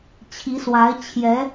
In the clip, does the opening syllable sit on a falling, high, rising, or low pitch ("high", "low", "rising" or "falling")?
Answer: rising